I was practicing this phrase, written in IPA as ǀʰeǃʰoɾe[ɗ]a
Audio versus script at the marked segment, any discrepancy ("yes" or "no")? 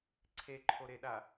no